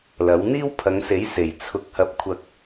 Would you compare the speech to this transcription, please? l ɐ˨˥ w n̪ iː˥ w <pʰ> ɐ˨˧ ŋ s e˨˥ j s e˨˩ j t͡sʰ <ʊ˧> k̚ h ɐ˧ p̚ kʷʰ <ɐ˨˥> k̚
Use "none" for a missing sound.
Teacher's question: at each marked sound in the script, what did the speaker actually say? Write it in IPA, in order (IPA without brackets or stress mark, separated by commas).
pʰ, ʊ˧, ɐ˧